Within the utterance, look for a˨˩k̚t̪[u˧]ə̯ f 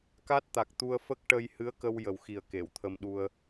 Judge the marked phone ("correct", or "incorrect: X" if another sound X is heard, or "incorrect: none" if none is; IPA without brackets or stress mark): correct